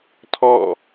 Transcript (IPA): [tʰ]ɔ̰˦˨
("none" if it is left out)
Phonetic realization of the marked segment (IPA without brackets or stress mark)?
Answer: tʰ